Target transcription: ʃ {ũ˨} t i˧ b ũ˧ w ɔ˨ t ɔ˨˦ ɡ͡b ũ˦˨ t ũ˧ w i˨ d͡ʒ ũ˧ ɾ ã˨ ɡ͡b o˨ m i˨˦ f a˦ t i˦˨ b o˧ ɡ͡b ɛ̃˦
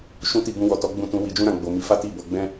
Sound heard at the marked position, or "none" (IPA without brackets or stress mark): ũ˦